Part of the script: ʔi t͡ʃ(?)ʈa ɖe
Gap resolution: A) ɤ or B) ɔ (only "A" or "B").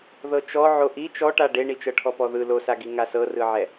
B